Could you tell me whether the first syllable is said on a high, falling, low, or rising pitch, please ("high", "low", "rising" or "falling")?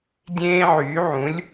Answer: high